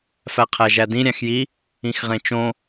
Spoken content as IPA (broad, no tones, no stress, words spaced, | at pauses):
fæqʰæʒædĩ ɾʲæ̃xji | ĩxʁẽt͡ʃõ